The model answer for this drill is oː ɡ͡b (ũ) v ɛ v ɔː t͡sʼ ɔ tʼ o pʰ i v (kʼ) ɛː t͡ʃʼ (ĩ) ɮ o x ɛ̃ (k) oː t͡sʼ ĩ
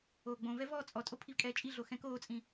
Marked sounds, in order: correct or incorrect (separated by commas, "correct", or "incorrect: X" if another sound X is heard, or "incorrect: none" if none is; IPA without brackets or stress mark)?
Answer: incorrect: õ, correct, incorrect: i, correct